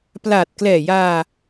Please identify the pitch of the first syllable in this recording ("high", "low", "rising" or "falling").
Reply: low